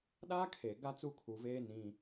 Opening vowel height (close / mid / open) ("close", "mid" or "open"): open